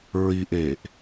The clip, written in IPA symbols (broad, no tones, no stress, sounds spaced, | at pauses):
ɹ i ʔ eː ʔ